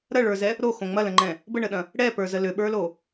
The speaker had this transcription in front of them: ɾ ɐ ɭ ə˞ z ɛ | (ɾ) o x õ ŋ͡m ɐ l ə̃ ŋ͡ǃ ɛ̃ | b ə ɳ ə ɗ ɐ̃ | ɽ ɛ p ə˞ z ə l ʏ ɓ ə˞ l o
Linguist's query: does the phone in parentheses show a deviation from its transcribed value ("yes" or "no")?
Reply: no